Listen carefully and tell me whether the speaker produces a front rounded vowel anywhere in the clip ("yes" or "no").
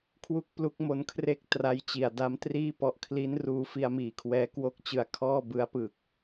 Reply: no